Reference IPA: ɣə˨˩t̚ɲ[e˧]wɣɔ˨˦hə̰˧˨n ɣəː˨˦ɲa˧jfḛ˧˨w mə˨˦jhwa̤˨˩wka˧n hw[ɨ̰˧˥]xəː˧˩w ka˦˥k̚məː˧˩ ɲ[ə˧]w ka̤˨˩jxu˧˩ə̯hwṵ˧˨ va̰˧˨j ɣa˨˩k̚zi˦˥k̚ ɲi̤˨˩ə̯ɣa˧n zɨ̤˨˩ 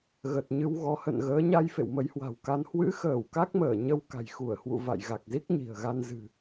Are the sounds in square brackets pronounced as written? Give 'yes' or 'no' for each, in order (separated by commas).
no, yes, yes